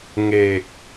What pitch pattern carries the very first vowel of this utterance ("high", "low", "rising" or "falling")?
low